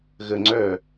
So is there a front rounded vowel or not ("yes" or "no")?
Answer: yes